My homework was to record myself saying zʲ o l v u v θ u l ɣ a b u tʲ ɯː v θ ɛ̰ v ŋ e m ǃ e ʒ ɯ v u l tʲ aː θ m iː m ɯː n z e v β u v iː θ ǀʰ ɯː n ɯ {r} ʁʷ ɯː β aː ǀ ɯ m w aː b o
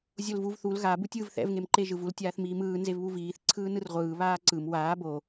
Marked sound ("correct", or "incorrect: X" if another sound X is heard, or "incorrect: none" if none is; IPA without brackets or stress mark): correct